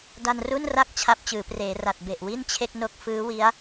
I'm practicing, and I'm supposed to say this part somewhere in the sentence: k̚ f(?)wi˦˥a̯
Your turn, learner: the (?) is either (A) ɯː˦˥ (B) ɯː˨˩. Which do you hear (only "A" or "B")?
A